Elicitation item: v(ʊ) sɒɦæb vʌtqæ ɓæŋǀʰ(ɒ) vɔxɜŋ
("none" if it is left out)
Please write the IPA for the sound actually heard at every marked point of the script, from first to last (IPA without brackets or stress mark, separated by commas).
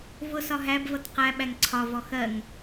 ʊ, ɒ